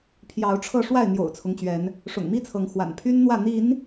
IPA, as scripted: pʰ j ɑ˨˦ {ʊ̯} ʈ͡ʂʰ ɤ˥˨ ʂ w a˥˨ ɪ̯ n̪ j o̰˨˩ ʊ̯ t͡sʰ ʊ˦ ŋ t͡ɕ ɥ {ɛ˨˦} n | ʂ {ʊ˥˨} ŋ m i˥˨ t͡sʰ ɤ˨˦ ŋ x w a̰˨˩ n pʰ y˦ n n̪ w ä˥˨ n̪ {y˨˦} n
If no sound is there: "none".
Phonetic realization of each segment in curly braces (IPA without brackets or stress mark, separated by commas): ʊ̯, ɛ˨˦, ʊ̰˨˩, i˨˦